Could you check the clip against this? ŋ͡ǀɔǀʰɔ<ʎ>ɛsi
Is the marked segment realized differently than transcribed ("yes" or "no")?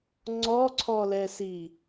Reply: yes